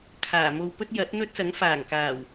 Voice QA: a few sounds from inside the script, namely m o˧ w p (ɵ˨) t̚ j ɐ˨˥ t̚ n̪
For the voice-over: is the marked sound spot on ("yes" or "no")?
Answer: no